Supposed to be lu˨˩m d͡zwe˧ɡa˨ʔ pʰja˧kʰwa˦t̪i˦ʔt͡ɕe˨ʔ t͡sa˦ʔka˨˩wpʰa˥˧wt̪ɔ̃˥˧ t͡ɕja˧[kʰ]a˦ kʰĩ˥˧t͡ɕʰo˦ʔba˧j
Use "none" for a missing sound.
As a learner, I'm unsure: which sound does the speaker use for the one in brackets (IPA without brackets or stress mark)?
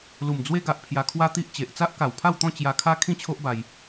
kʰ